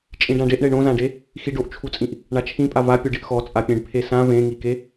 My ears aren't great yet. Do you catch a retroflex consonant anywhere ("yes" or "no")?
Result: yes